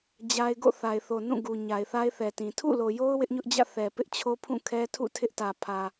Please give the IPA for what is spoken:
d͡ʑ a˦ ɪ̯ ɡ o̰˦˨ θ a˨ ɪ̯ θ o˨ n ũ˦˨ ɡ u˨ ɲ a˨ ɪ̯ θ a˦ ɪ̯ θ ɛ˨ t ĩ˨ tʰ ṵ˦˨ l o˨ j o˦ ʊ̯ w ɪ˦ ʔ ɲ ʊ˦ ʔ d͡ʑ ä̰˦˨ θ ɛ˨ p ɪ˦ ʔ t͡ɕʰ o˦ pʰ ũ˦˨ kʰ ɛ˦ tʰ ṵ˦˨ tʰ ɪ˦ ʔ t ä˨ pʰ ä˨

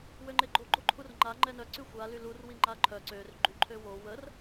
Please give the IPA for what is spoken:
w ø ŋ͡ǃ e ɡ͡ǃ o ɡ͡ǃ o ǃʰ u r ŋ͡ǃ a ŋ͡ǃ ɛ n œ ǀ y xʷ a l y l u r w i ŋ͡ǃ a ǃʰ œ ǀ ø r ɡ͡ǃ y ǃʰ ø w o w ə r

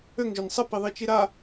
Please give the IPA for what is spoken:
ø ŋ ʒ ø n sˤ ə p i ðˤ i t͡ʃ i ɾ a

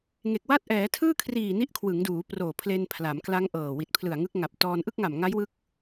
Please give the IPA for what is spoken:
ŋ e˨˩ k̚ w a˥˩ t̚ ʔ ɛː˩˦ tʰ ɯː˥˩ kʰ r iː˨˩ n i˦˥ ʔ kʰ w ɯ˩˦ ŋ d uː˩˦ p r oː˨˩ pʰ l e˧ n pʰ l a˩˦ m k l a˦˥ ŋ ʔ ɤː˨˩ w i˨˩ t̚ pʰ l ɯ˨˩ a̯ ŋ ɯ˦˥ k̚ ŋ a˨˩ p̚ t ɔː˧ n ʔ ɯ˥˩ k̚ ŋ a˨˩ m ŋ a˦˥ j w ɯ˦˥ k̚

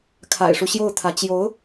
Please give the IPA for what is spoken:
kʰ a̰˨˩ ɪ̯ ʂ u˦ ɕ j o˥˩ ʊ̯ t̪ʰ ä˧˥ t͡ɕ j o˧˥ ʊ̯

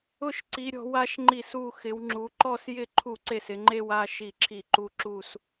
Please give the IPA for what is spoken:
ʊ˥˧ ʃ ǀ i˨˦ ɾʲ ɔ̤˨˦ w a˨˦ ʃ ŋ͡ǃ i˥˩ s u˥˧ x ɪ˨˦ w ŋ͡ǁ u˨˦ ǃ ɔ˥˧ s j ɪ˥˩ ǃʰ u˥˩ ǀ e˥˩ s ɪ˨˦ ŋ͡ǃ e˥˧ w a˥˧ ʃ i˥˩ ǁʰ i˥˩ ǃ u˥˧ ǁ u˥˧ s

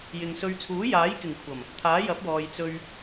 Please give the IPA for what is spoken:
j ɪ˨ ŋ s ɵ˧ ɥ t͡sʰ uː˨˥ j aː˨˥ j k ɪ˨˩ ŋ kʷʰ ɐ˨˩ m | t̪ʰ aː˨˥ j ɐ˨˥ p̚ w ɔː˨ j t͡s ɵ˧ ɥ

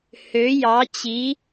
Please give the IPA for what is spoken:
h ø˩˥ j ɑ˩˥ t͡ɕ i˩˥

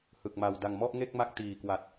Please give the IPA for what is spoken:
h ɯ˨˩ k̚ m a˨˩ w d a˨˩ ŋ m ɔ˥˩ ʔ ŋ e˥˩ k̚ m a˦˥ k̚ t iː˨˩ k w a˨˩ t̚

